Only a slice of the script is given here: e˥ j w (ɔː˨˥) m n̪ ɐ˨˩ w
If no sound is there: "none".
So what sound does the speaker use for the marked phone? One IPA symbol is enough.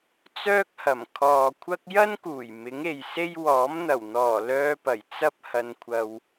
ɔː˨˥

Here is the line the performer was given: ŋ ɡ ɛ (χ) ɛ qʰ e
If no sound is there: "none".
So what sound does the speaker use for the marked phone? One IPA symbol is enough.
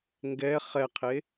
χ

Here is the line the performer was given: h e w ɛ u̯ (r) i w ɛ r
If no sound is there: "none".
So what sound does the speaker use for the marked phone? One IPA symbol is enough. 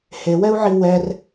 ʕ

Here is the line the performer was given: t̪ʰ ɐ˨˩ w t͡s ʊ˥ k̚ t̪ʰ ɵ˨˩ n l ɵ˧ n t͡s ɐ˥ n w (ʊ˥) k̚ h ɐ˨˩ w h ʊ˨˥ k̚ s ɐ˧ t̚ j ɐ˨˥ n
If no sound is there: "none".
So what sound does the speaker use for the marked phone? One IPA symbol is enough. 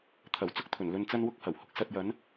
ʊ˥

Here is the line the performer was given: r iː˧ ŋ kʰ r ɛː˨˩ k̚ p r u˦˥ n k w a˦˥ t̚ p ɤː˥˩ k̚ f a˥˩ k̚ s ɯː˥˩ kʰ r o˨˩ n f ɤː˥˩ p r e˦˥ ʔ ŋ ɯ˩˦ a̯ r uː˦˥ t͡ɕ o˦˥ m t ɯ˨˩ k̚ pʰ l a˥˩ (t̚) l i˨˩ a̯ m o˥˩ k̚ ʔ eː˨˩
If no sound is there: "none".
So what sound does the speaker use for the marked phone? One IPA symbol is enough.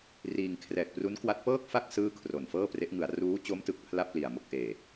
p̚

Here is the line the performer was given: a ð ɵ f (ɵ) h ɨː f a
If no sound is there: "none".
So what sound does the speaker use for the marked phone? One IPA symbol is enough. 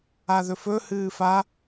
ɵ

